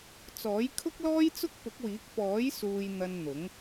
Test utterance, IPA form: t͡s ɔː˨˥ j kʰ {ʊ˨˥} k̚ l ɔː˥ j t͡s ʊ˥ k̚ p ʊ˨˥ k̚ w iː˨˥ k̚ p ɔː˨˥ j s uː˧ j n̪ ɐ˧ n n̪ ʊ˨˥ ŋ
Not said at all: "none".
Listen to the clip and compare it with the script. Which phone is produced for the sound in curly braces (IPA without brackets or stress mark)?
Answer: ʊ˥